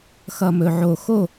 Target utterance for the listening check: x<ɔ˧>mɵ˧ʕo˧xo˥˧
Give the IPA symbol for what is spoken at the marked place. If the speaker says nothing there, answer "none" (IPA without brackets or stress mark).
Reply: ʌ˧